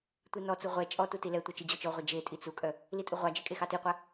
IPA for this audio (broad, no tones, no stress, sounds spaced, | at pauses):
tʷ i n ɔ t͡s u ʁʷ ɛ t͡ʃʼ ɔ t u t i l ɛ tʷ ɤ t͡ʃ i d͡ʑ ɔ t͡ʃ ɔ ʁʷ ɛ d͡ʒ e tʼ i t͡s u kʼ œ | l i tʼ u ʁʷ ɑ d͡ʒ e kʼ e x ɑ t i qʷ a